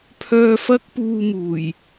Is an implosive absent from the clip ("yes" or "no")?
yes